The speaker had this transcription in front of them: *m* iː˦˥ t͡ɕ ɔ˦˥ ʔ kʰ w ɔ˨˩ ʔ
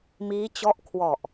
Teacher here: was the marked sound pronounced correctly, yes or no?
yes